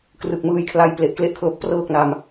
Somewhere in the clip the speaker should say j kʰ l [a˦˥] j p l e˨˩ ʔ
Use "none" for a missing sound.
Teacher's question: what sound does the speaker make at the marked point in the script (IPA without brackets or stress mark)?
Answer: a˧